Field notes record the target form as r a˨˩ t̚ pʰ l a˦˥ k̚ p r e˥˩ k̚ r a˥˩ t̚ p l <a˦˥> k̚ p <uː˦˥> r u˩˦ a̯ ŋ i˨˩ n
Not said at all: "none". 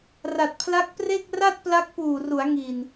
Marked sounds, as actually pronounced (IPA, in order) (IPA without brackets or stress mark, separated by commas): a˦˥, uː˨˩